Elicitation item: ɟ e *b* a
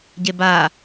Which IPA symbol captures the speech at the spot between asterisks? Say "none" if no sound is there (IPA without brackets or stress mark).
b